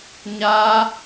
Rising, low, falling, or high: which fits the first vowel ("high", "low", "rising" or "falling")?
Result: high